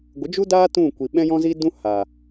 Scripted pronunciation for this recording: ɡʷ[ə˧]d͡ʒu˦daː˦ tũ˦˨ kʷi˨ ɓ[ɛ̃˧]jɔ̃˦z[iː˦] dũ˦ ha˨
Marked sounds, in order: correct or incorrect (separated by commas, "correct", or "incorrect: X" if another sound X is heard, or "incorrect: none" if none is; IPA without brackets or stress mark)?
incorrect: ə˨˦, incorrect: ɛ̃˦, correct